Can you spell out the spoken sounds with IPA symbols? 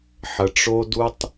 ħ ə˩ ʈ͡ʂ o˧ d u˧ tˤ

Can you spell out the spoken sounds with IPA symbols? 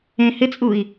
ẽ h ɪ t͡sʼ u i̯

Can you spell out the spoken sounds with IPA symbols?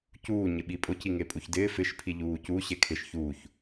c uː ɲ ɪ ɓ i pʼ ʊ c i ŋ e pʼ u ç d ɪː f ɪ ʃ pʰ i ʎ uː c u ɕ e kʰ ɪ ʃ ç uː ç

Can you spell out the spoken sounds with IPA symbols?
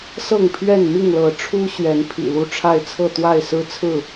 s ɤ˥˨ ŋ pʰ ɥ ɛ˥˨ n m i˥˨ ŋ l ɤ˨˦ ʈ͡ʂʰ u˦ ɕ ɥ ɛ˨˦ n pʰ ḭ˨˩ l u˥˨ ʈ͡ʂʰ a˥˨ ɪ̯ t͡sʰ ɤ˥˨ t̪ w a˥˨ ɪ̯ s ɹ̩˦ t͡sʰ ɹ̩˥˨

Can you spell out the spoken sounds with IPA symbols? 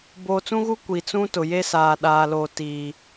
b oː˨ t͡s ũ˦ ɣ u˦ kʷ i˨ t͡s ũ˦ t ʊ˨ j e˦ s aː˨ ɗ aː˨ l oː˨ t iː˨

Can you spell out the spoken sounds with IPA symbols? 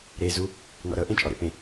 ɾ e z u | n ɔ̰ ɾ ɤ ʔ ẽ t͡ʃʼ ɔ ɾ ḛ p ẽ

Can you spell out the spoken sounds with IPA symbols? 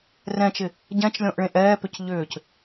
r ɛ̃ t͡ʃ ɪ | ɟ ɛ̃ t͡ʃ lʲ ɔ̃ ʔ ɭ ẽ ʔ ɛː p ʏ c ʎ ʏː c

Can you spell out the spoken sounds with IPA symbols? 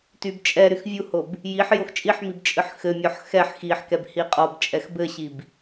t y b t͡ʃʼ ɛ ɾ y x vʲ u h o b | j i ħ j o x t͡ʃʼ i ħ m i b t͡ʃʼ ɨ ħ x ɘ mʲ ɔ ħ x ɛ ħ x i ħ k ɛ b h i qʼ ɔ b t͡ʃʼ ɛ x b ɘ ɕ i b

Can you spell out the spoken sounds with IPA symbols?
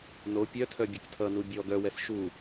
n o pʲ œ tʰ œ bʲ ɐ k tʰ ʌ n u bʲ ɔ ɡ œ w ɛ s ʃ u

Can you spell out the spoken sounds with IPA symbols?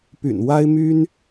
p y̰˨˩ n w a˦ ɪ̯ m y˦ n

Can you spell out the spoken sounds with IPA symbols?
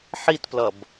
ħ i t p l ʌ b

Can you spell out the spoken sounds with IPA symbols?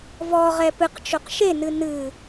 v ɔ ʁ ɛ p ɨ q t͡ʃ o q ʃ e n ɨ n ɨ

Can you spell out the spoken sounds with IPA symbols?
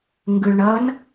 ŋ ɡ ɯ ɭ ɳ ʌ n

